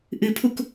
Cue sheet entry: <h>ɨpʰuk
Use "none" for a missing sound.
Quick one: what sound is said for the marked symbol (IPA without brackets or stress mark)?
ʔ